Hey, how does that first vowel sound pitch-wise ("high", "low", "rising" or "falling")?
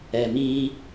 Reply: low